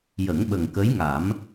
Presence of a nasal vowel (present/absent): absent